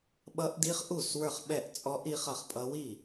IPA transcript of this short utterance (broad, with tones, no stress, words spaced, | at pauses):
ɓʌ˦˥ʔdi˦˥χʔu˥˩s wə˞˥˩χɓɛ˥˩ʔt͡sʼɔ˦˥ʔ i˦˥χʌ˥˩χpʼʌ˦˥ wi˥˩